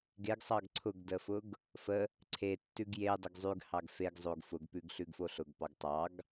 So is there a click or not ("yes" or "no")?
yes